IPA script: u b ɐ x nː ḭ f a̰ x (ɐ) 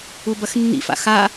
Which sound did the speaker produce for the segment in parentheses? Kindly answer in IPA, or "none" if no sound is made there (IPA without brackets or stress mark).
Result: a